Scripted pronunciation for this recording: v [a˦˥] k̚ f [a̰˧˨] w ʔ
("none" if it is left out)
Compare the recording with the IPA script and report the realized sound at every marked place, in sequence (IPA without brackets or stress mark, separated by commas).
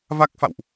a˦˥, a̰˧˨